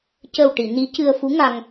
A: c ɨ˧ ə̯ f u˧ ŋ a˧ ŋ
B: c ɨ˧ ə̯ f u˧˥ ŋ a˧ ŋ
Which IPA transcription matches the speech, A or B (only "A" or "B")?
B